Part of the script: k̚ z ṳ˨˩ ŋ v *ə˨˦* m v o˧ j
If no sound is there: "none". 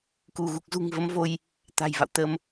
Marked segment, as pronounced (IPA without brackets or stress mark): ə˨˦